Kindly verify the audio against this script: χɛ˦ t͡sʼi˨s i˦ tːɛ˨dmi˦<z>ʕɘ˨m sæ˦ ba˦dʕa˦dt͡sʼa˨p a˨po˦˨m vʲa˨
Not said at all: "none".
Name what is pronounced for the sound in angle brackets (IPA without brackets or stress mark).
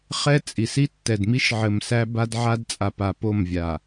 ʃ